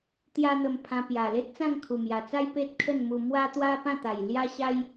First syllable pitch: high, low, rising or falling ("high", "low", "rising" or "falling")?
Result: high